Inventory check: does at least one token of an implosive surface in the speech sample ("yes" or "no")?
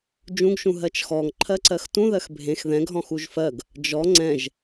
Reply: no